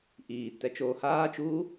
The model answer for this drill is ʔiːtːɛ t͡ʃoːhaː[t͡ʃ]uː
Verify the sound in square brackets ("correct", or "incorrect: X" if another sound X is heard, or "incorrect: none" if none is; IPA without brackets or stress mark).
correct